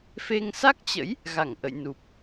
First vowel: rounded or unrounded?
unrounded